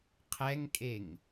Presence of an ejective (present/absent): present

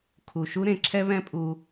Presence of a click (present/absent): present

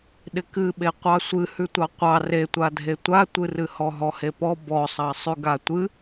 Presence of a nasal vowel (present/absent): absent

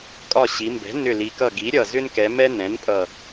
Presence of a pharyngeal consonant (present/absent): absent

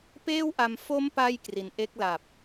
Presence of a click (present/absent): absent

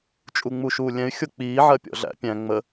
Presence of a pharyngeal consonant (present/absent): present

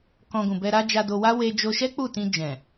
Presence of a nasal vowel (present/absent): present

